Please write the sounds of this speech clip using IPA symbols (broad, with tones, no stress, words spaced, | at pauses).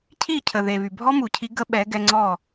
cʰi˦˨cʰə˨ ðe˨βy˨ bʱɔ˦mu˨cʰi˧ ɡə˦ɓɛ˨˦ɡɛ˧ŋ͡ǀɔ˦˨